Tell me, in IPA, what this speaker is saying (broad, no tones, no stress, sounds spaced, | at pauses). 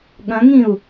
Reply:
ɠ ɐ̃ ŋ ĩ u̯